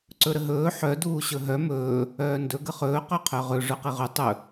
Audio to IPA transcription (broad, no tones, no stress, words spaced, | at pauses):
ǀɵɾəɦɵː ħœ duːɕɵɦœ mɵː | œːndɵ ɡəχɵː qœqʰœʁɵ ʐɵqiʁɵ tˤɵ